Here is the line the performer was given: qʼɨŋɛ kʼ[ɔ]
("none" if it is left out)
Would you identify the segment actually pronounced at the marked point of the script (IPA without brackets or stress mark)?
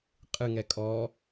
ɔ